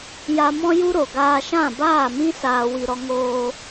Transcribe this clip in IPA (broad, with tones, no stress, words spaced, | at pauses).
ja˧mɔ̃˦ju˦ɾo˨ ɡaː˧ʃã˦˨baː˦˨mĩ˦ saː˧wi˧ɾɔ˦ ŋoː˧